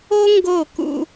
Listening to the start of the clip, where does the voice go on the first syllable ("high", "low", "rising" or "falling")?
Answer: high